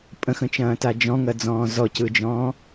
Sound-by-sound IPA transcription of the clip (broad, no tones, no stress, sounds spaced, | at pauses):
pʼ ə̃ x ə̃ t͡ʃ ɐ̃ː t a d͡ʒ ɔ̃ ŋ ɐ d͡z ɔ̃ː z ɔ c ɯ d͡ʒ ɔ̃ː